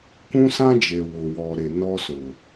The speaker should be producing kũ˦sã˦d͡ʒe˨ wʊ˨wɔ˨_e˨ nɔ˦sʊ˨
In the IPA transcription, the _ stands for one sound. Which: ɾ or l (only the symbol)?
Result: ɾ